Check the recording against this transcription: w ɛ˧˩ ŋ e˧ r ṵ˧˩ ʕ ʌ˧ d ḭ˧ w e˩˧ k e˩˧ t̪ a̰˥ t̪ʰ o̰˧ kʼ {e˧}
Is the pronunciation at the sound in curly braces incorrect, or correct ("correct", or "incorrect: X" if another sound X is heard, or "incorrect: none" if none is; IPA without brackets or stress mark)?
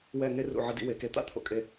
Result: correct